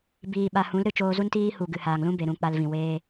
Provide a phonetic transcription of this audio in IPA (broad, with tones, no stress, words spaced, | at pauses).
biː˨ɓa˨ hũ˨˦lɾɨ˧ t͡ʃoː˧zu˦ntiː˦ hu˨ɡɨ˨haː˨ŋlũ˦ be˨ɾũ˧ k͡pa˧lvĩ˨weː˦